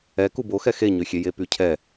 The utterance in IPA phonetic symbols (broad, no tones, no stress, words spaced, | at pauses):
ɛ kubo xɛxeɲøxʲe jepycʰɛ